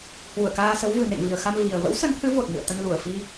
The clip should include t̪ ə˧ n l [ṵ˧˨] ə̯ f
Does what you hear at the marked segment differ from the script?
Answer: yes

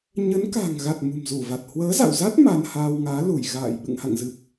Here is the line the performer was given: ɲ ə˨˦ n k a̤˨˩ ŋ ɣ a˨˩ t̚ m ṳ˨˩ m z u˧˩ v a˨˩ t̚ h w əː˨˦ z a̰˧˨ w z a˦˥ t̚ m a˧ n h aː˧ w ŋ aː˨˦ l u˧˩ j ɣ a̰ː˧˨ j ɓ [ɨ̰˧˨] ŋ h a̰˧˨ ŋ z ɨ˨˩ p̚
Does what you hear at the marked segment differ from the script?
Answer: no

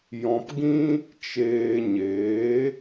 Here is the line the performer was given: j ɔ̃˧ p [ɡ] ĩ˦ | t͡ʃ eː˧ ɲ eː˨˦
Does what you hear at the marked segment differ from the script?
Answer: no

